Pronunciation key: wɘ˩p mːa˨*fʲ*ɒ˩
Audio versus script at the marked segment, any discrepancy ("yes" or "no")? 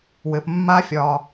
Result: no